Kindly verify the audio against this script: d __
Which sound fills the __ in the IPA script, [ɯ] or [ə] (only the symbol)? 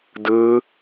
ɯ